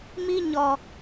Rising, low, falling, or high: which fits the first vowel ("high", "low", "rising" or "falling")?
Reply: high